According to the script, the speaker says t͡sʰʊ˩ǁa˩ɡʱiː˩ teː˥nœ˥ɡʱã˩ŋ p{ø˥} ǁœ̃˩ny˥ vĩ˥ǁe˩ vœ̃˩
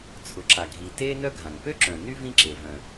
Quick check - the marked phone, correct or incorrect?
correct